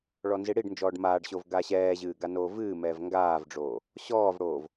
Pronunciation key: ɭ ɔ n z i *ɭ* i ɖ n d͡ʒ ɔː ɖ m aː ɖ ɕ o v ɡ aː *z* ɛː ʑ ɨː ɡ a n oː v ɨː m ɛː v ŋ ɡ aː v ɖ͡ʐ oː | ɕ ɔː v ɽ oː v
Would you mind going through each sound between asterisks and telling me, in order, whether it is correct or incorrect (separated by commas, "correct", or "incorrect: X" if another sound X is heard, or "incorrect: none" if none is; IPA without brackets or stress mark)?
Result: incorrect: ɽ, incorrect: ɕ